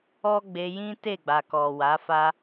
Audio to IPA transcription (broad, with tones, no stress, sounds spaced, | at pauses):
ɔ˦ ɡ͡b e˧ j ĩ˦ t e˦˨ ɡ͡b a˨ k ɔ˨ w a˨˦ f a˦